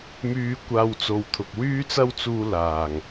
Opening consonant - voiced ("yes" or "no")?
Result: yes